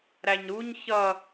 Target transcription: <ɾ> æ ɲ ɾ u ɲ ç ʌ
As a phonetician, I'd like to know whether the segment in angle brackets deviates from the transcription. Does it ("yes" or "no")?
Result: no